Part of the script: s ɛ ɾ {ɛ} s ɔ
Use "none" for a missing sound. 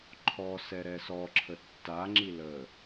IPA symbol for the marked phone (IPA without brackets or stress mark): ɛ